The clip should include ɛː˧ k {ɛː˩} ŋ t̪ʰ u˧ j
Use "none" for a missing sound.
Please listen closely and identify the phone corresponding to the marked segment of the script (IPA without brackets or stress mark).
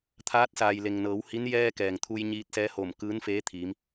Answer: ɛː˩